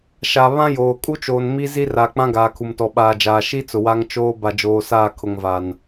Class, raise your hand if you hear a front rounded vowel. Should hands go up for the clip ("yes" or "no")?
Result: no